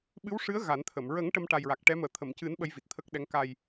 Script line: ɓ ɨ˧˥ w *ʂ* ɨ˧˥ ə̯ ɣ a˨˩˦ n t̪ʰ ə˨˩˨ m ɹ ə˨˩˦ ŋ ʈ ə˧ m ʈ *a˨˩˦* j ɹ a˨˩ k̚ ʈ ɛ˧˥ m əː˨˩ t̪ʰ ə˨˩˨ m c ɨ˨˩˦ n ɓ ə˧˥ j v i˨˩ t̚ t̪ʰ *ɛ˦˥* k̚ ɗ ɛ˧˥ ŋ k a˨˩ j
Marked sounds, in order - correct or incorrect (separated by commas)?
correct, incorrect, incorrect